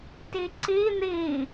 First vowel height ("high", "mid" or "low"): high